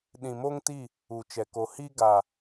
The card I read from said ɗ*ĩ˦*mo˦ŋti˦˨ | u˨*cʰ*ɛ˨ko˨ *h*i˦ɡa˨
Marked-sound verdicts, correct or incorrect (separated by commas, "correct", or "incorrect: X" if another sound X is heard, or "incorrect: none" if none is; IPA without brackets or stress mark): incorrect: ĩ˨, incorrect: t͡ʃ, correct